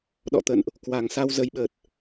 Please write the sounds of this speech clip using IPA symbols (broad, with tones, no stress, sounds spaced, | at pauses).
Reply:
ɗ ɔ̰˧˨ t̪ ə̰˧˨ n ʔ | k w a˨˩ ŋ s a˧ w z ə˨˦ j ɓ ə˨˩ t̚